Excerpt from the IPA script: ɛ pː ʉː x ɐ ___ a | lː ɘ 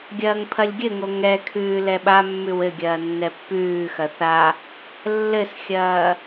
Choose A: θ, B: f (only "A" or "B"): A